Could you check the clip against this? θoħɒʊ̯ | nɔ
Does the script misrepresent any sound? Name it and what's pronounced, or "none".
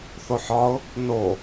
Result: ɔ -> o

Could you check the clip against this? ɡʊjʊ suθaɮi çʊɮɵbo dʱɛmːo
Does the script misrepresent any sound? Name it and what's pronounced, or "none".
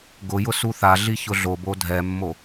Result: ɵ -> o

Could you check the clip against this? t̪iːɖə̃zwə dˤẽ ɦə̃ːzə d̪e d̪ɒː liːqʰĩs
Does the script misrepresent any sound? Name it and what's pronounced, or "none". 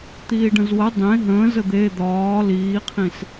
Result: none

